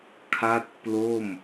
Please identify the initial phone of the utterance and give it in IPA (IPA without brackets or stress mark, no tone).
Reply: kʰ